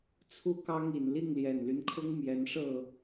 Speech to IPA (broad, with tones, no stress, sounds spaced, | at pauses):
t͡sʰ u˦ k ɑ˦ ŋ i˨˩ n l i˥˨ ŋ l j ɛ˨˩ n l y˦ n kʰ ʊ˦ ŋ m j ɛ˨˦ n ʂ ɤ˥˨